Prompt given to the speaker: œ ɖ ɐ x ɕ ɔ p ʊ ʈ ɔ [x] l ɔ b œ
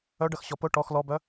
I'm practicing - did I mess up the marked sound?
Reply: no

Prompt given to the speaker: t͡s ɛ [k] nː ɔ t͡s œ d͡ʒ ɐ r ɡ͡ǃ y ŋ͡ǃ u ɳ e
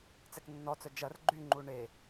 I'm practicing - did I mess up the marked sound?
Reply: no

